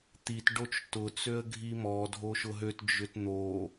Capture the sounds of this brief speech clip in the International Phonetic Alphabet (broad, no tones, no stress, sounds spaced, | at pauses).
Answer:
t̪ i t ɖ o t͡ʃ t ʊ t͡s ø ə̯ ɡʱ i m ɔ dʱ o ʃ ʊ ɦ ø t d͡ʒ ʏ t n̪ o